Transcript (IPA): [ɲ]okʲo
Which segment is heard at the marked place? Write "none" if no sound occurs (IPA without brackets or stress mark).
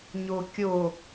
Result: ɲ